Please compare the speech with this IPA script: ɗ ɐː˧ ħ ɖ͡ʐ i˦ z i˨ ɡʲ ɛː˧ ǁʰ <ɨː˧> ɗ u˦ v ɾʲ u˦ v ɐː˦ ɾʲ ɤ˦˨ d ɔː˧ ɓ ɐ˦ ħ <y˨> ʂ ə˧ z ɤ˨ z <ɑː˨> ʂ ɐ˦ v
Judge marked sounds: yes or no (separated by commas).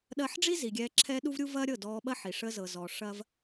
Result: no, no, no